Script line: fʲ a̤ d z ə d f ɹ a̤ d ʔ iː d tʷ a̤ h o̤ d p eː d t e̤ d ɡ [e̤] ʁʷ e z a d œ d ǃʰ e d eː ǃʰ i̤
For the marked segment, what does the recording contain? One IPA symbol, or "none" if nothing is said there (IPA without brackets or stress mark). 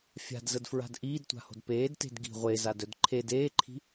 i̤